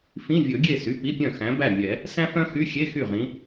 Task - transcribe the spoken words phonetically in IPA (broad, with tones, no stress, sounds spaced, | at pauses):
f ĩ˧˥˧ vʲ ɵ˨˩˦ ɡʲ e˥˩ s y˩˧˩ p i˧˥˧ pʲ œ̃˥˩ x æ̃˨˥ b æ˥˩ mʲ ɛ˨˩˦ | s æ̃˥ f œ̃˥ x y˧˥˧ xʲ e˧˥˧ x y˥˩ ʁ ĩ˨˥